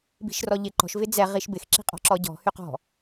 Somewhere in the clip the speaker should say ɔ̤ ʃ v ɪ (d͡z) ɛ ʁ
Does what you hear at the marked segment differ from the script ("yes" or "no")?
no